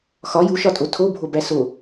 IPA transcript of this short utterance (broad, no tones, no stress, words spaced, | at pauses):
xɒ juʃɒtʼo tʰobʱobæ so